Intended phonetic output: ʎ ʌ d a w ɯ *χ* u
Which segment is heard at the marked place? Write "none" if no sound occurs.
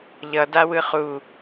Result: χ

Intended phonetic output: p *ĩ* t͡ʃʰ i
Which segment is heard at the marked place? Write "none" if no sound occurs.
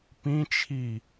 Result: ĩ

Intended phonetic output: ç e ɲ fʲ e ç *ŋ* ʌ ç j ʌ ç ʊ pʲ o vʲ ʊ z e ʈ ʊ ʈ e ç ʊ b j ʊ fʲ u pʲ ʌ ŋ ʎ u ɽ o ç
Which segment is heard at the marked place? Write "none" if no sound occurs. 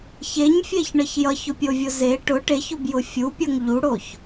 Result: ɳ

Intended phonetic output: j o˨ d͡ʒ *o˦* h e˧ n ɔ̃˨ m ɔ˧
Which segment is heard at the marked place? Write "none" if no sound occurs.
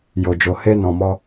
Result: o˨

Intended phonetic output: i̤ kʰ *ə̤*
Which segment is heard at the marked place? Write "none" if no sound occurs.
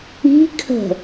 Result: ə̤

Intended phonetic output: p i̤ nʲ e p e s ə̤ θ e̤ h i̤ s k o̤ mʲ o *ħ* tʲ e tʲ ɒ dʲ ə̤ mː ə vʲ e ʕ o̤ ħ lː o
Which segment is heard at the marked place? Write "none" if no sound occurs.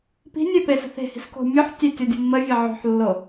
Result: ħ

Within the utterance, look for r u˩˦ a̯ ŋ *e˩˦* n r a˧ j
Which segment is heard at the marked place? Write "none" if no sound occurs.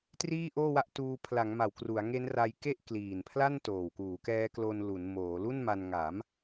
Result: e˦˥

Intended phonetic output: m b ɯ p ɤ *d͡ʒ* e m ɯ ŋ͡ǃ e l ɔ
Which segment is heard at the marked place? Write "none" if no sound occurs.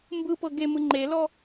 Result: ɡ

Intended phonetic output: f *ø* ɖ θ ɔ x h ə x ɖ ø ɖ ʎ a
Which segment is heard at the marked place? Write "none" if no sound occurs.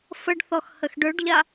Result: ə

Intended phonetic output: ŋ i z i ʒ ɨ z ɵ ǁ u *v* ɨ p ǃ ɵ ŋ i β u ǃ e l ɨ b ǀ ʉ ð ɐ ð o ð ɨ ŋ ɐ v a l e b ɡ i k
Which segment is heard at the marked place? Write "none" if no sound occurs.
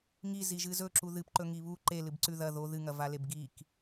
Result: ð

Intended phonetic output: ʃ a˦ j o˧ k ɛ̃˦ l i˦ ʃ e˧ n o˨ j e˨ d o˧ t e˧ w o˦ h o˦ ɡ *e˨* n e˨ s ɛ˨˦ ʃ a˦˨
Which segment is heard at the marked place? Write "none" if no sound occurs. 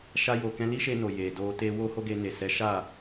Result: e˧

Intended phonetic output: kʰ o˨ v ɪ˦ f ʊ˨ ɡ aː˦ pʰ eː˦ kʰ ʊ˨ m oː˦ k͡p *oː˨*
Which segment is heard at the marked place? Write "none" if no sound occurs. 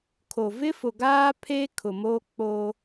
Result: oː˦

